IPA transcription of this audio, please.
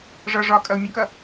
ʐ ʌ ʐ ɒ kʼ ʌ u̯ mʲ ə k ʌ

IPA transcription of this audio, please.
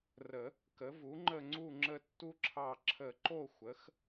r ə˨˩˦ | k ə˩˥ v u˩˥ ŋ͡ǃ ə˦˨ ŋ͡ǀ u˦˨ ŋ͡ǁ ə˦˨ tː u˦ ǁʰ ɑ˦˨ ǁʰ ə˨˩˦ ǃ o˦˨ xʷ ə˩˥ x

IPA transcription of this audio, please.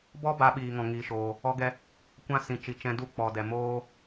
b ɔ˦ b a˧ ɓ iː˨ ŋ ɔ̃˨ ŋ iː˨ ʃ oː˨ | ɔ˧ ɡ ɛ˧ | kʷ ã˦ s ĩ˨ t͡ʃ i˨ t͡ʃ ɛ̃˧ d u˦ k͡p ɔ˨ d ɛ˨ m oː˦

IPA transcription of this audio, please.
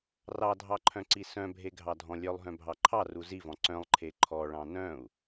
r ɑ dʱ ɑ ǃʰ œ̃ ǀ i s œ̃ bʱ e ɡʱ ɑ dʱ ɔ̃ lʲ œ lˠ ɦ œ̃ bʱ ɑ ǃʰ ɑ r u z i v ɔ̃ ǀ œ̃ lˠ ǃʰ e ǃʰ ɔ ɭ ɑ̃ n œ̃ u̯

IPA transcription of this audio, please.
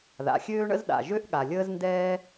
ð a̰˩ xʲ øː˥ ɳ ə̰˥ z ɗ a̰˩ ʒ ø˥ ʔ ɠ a˩ lʲ əː˥ z n d ɛː˥

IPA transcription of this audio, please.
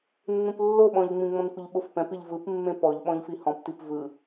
nː ũ p lː o ɓ ɔ̃ ʎ ŋ͡m ĩ ŋ͡m ɔ̃ n kʷ ɯ ʎ ɓ o f p ɛ̃ p i ʎ v ɯ p mː ẽ p ɔ ʎ ɓ ɔ̃ ʎ f i h ɔ̃ p t i p v ɯ

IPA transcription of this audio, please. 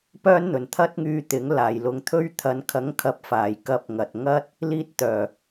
p œː˥ n n̪ ɵ˨ n t̪ʰ ɐ˥ t̚ ŋ yː˧ t̪ ɪ˨˥ ŋ l aː˨ j l ʊ˧ ŋ t̪ʰ ɵ˥ ɥ t̪ʰ ɐ˨˧ n kʰ ɐ˨˥ ŋ kʰ ɐ˨ p̚ f aː˨˩ j k ɐ˧ p̚ ŋ ɐ˨ t̚ ŋ ɐ˥ t̚ | l iː˧ t̚ t̪ œː˨˩

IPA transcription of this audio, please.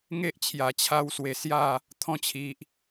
ŋ e˦ ʔ t͡ɕʰ j a˨˩ t͡ɕʰ a˧ w s w e˨˩ s j a˥˧ | t̪ʰ ɔ̃˧ t͡ɕʰ i˨ ʔ

